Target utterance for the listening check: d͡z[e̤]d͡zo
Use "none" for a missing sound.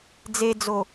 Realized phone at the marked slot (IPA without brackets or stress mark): e